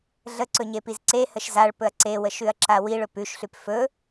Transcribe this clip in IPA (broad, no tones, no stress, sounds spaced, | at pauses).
ɮ ə ǀ ɵ ɲ e p i z ǀ e h ə ʃ z a ɭ p ɵ ɐ̯ ǀ e w ə ʃ ʉ ɐ̯ ǁ a w i ɭ ɵ p ʉ ʃ ɬ ʉ p f ɵ